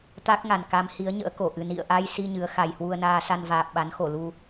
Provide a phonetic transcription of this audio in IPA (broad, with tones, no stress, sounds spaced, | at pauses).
t̪ a˦˥ k̚ ŋ a˨˩ n k a˨˦ m h i˨˦ ə̯ ɲ ə̰ː˧˥ k o˧˩ ʔ ɨ˨˩ n ḭ˧˨ ə̯ ʔ a˧ j s i˧ ɲ ɨ˨˦ ə̯ x a˨˩ j h w u˧ ə̯ n aː˧ s a˧ n v aː˨˩ p̚ ɓ a˨˦ n x o˧˩ l u˧